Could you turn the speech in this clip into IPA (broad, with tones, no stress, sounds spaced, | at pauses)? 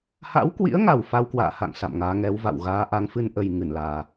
h a̰˧˥ w k w ḭ˧˥ ə̯ ŋ a˨˩ w f a˧ w k w a̰ː˧˨ h a̰˧˨ ŋ s a̰˧˨ m ŋ aː˨˦ ŋ ɛ˨˦ w v a̰˧˨ w ɣ aː˨˦ ʔ a˨˦ ŋ f ɨ˧ n ʔ ə˨˩ j ŋ ɨ˧˩ n l aː˧